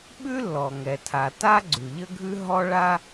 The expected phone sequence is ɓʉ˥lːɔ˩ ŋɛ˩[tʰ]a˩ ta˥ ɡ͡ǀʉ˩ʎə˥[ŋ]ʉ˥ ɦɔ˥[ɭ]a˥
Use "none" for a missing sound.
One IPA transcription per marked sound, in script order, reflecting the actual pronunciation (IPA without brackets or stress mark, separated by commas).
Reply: tʰ, ɡʱ, ɭ